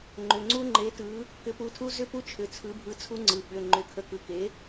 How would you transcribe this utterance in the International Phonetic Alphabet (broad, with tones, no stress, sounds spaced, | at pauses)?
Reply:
ŋ͡ǃ ʏ˩˧˩ ŋ͡ǀ u˦˥ ŋ͡ǃ e˨˥ t ɯ˨˥ | k ʏ˨˥ p u˨˥ tʰ u˦˥ z ʏ˦˥ p u˦˥ t͡ʃʰ ʏ˩˧˩ t͡sʰ ɯ˨˥ bʱ ɯ˨˥ t͡sʰ u˦˥ ŋ͡ǀ ɯ˩˧˩ ɓ ʏ˩˧˩ ŋ͡ǃ ʏ˨˥ kʰ ə˨˥ k ɯ˩˧˩ k e˨˥